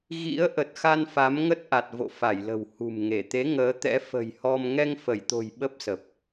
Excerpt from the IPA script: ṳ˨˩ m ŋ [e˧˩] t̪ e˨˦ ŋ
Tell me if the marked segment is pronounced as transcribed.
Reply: yes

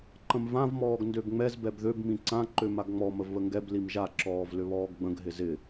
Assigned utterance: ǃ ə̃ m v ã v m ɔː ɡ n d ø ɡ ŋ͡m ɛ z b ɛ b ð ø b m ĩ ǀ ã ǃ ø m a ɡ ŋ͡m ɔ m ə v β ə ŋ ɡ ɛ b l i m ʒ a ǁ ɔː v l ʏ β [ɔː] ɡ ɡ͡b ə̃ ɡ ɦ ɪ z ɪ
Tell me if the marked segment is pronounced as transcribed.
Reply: yes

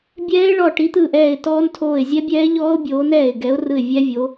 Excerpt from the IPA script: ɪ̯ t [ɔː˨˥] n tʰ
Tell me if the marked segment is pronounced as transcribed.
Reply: no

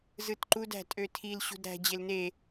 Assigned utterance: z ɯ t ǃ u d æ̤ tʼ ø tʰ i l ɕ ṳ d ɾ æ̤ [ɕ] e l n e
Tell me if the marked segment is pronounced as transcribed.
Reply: no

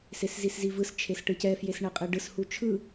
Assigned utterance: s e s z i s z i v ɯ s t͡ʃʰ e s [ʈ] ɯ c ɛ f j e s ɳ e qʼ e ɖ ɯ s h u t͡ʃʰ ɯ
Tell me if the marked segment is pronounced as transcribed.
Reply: yes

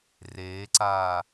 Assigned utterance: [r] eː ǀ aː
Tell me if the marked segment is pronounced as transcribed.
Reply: yes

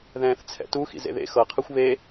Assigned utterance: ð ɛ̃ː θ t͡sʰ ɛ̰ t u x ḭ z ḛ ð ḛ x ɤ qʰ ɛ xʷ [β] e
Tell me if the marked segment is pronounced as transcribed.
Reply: yes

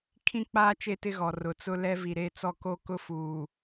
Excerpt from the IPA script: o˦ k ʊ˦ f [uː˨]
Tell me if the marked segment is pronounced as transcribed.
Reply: yes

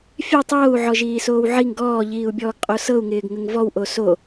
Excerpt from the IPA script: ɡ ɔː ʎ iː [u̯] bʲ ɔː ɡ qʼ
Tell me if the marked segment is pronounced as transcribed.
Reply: yes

